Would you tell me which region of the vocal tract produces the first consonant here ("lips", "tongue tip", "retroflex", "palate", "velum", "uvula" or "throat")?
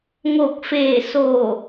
velum